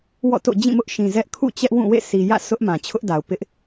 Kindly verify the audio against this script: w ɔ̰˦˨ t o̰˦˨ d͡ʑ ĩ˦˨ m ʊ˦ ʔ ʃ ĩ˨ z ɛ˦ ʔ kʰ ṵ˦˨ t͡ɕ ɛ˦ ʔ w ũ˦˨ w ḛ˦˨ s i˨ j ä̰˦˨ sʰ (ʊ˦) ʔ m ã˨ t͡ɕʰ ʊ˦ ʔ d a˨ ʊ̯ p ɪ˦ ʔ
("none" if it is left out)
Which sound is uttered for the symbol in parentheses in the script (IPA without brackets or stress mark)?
ʊ˦